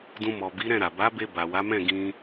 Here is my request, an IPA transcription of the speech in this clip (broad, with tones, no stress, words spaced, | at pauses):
dũ˧mɔ˨bi˨˦ ɾɛ̃˦˨ɾa˨ ba˨˦be˧ ba˨wa˨˦mɛ̃˦˨ ɡĩ˧